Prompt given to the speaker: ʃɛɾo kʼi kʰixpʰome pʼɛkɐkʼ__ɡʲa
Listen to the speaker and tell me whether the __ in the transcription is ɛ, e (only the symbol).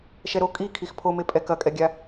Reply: ɛ